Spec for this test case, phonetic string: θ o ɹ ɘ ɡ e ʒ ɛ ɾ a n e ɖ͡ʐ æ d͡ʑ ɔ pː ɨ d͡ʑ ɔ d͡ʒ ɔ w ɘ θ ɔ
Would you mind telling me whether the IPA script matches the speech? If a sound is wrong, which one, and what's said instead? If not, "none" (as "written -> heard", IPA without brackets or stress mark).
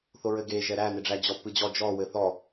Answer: a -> æ